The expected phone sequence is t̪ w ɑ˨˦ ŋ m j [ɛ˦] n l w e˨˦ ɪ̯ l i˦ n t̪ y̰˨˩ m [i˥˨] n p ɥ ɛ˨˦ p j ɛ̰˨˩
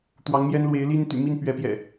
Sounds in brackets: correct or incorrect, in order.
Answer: correct, correct

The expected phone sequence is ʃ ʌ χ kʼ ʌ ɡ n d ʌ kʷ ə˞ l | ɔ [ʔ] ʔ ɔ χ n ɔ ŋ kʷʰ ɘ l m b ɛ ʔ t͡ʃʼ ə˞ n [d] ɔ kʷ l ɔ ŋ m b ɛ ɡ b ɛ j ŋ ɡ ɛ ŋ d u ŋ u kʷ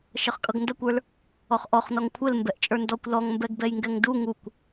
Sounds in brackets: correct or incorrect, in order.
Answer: incorrect: χ, correct

